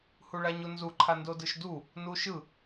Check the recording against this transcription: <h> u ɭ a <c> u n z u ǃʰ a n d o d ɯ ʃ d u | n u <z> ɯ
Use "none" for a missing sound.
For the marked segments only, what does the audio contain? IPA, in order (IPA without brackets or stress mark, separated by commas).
h, ɲ, ʃ